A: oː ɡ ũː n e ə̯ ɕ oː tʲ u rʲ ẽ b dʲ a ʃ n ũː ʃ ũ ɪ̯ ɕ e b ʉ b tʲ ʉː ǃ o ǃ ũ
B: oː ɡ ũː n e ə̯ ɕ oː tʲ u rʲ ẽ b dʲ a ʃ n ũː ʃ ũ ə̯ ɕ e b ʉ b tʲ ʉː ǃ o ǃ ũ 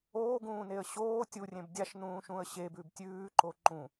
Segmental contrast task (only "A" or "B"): B